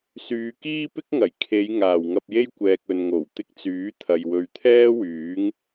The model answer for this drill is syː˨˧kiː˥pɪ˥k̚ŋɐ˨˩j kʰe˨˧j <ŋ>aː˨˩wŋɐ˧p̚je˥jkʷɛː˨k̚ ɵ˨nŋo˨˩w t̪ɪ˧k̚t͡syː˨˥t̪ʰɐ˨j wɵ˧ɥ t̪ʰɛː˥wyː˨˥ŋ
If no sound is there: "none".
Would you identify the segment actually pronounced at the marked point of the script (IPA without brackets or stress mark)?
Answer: ŋ